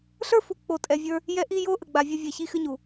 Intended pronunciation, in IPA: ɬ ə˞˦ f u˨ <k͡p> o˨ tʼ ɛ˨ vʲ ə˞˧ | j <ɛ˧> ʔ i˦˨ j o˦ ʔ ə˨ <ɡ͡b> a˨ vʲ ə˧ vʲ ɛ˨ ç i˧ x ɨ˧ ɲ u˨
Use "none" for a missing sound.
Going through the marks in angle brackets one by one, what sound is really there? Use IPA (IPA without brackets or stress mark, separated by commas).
k͡p, ɛ˦, ɡ͡b